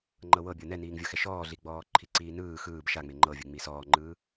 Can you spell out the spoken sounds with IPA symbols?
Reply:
ŋ͡ǃ ɤ w ɤ bʲ ɤ n ɛ n iː ŋ vʲ ɤ x ɛ ʃ ɔː ɮ i ɡ͡b ɔː ǃʰ i ǀ iː n ɯː x ɯː b ʃ a ŋ͡m e ŋ͡ǃ ɤ vʲ ɯ ŋ͡m iː s ɔː ŋ͡ǃ ɯː

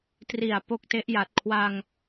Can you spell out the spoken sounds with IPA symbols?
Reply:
t r i˨˩ a̯ p o˥˩ k̚ t e˦˥ ʔ j a˨˩ t̚ kʰ w a˧ ŋ

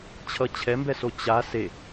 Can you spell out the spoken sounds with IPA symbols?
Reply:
t͡ɕʰ ʌ t͡ɕʰ ɛ m b ɛ s o t͡ɕ a s e

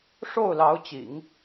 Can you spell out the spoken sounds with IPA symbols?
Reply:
ʂ o˥˩ ʊ̯ l ɑ˧˥ ʊ̯ t͡ɕ ḭ˨˩˦ ŋ

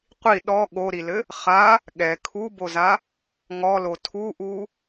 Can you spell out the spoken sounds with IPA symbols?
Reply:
qʷ i ɗ ɔ ɠ o ɾ i l ɘ | χ a | ɠ ɛ kʰ u b o z a | ŋ ɔ l o tʰ u ʔ u

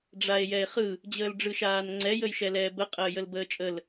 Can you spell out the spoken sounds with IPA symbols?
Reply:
ɖ͡ʐ a e̯ j ɛ e̯ χ ɯ | d͡ʑ əː l ɖ͡ʐ ɯ ʃ aː n ŋ͡ǀ ɛ j ə j ʃ ɛ l ɛː b ə qʼ əː j ə l b əː t͡ʃʼ ə l

